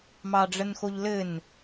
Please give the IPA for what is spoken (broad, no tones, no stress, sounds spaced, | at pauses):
m ɑ ɖ͡ʐ ə n x o ʎ l ɘ n